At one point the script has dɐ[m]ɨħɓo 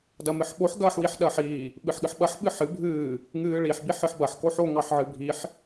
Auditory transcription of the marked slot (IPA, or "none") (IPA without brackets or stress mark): m